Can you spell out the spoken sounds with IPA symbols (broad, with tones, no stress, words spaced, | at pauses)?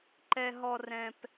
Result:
ǃɛ˥ɦɔ˥ rɛ̃˥p